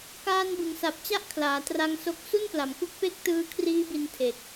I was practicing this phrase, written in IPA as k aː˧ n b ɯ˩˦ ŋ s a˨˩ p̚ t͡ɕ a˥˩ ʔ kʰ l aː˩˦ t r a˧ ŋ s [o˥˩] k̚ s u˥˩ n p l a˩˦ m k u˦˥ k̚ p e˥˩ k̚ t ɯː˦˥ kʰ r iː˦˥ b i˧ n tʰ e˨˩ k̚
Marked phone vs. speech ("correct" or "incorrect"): correct